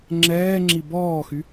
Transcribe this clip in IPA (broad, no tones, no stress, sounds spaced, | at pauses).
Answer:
ŋ͡ǁ ɛː ŋ͡ǁ i b ɔː x y